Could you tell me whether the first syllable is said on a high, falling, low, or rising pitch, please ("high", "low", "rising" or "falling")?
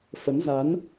rising